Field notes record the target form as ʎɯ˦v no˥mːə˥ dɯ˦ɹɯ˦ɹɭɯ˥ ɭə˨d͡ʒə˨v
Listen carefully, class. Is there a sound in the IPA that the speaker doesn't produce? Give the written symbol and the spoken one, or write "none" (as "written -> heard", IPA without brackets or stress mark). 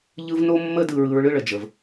none